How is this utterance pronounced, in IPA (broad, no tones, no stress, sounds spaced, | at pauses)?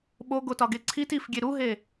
ɓ o ɡ o t ɒ ɡ e ǀʰ i t i f ɡʲ e ɾ u ɦ e